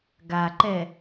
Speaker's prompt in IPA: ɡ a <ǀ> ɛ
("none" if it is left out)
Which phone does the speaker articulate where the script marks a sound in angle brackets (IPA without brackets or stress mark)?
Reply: ǃ